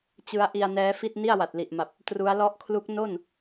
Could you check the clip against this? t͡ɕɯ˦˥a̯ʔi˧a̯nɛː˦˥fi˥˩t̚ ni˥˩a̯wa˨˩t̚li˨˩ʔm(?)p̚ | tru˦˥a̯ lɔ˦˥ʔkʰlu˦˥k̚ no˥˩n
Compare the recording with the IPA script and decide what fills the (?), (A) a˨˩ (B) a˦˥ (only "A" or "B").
A